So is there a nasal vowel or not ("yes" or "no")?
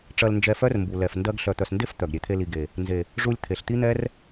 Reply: no